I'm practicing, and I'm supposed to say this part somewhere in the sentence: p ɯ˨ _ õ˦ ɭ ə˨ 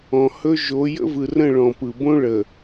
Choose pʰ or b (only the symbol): b